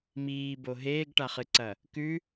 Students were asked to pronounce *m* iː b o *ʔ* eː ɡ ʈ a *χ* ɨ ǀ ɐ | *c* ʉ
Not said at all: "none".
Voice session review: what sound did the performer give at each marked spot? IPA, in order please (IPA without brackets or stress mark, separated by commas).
m, ɦ, χ, k